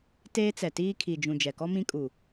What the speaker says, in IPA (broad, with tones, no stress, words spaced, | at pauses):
teː˦t͡sɛ˨tiː˦ kʰi˨d͡ʒũ˨ d͡ʒɛ˨kɔ˦ mĩ˦ kʼu˨